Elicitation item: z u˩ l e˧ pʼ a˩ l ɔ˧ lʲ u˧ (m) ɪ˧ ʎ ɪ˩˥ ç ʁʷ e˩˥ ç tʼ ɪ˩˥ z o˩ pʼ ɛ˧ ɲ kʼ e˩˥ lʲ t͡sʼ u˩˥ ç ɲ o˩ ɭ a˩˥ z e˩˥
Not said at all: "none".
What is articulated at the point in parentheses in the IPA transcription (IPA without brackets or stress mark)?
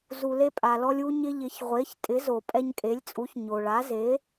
ɲ